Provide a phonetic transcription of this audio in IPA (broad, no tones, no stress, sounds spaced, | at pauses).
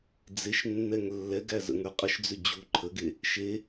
d͡z e ʃ nː ɛ ŋ lː ɛ ɡ æ z ə̰ ŋ ə˞ qʼ ə ʃ d͡z ʏ d͡ʑ u ǃʰ ə ɡ e | ʃ e